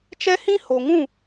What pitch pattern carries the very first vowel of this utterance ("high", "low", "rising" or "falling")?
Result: high